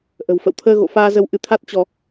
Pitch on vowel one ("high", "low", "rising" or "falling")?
low